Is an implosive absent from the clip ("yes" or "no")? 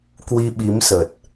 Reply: no